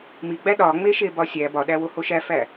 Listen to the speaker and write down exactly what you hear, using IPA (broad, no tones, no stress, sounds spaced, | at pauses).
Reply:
m i ɡ͡b æ ɗ ɒ ŋ͡m e ʃ e b ɒ sʲ æ b ɒ ɗ æ w o h o ʃ æ f æ